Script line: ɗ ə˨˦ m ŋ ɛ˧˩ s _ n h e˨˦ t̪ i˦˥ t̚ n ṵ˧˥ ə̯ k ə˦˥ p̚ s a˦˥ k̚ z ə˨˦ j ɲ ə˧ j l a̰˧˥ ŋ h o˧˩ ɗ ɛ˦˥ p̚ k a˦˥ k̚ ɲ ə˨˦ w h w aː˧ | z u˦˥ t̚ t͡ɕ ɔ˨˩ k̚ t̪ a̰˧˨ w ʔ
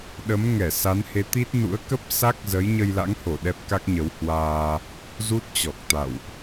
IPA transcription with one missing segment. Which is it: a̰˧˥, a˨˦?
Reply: a˨˦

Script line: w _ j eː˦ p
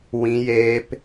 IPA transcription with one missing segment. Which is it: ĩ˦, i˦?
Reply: ĩ˦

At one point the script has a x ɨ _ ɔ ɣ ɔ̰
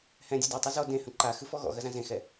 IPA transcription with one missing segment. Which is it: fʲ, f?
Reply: f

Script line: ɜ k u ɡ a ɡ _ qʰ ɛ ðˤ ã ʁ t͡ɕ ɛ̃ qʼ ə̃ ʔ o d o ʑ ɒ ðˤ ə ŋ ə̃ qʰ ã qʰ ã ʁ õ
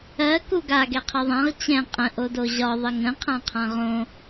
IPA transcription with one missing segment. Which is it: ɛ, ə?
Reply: ɛ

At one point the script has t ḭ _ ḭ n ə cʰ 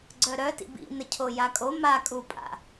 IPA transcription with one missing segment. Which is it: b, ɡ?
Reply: b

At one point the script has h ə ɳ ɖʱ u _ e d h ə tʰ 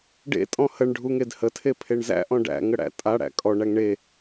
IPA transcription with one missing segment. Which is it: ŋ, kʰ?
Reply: ŋ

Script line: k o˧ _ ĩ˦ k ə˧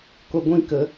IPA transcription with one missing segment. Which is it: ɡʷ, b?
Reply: ɡʷ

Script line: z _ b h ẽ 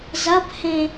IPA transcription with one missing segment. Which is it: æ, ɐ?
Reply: ɐ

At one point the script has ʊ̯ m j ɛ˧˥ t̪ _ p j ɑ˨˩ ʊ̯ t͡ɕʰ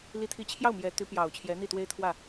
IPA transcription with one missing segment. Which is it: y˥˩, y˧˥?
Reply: y˧˥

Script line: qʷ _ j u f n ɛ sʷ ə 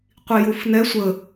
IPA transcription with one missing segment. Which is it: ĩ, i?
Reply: i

